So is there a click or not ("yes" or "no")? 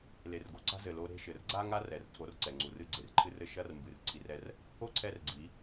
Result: yes